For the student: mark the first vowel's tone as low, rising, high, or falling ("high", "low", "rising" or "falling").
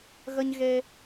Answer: high